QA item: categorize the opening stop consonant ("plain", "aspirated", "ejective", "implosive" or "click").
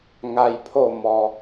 aspirated